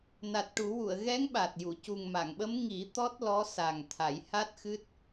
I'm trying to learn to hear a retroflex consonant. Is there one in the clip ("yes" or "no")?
yes